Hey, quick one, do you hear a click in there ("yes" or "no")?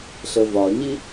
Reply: no